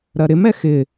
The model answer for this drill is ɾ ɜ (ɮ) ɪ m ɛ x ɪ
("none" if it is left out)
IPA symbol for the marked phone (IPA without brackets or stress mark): ɾ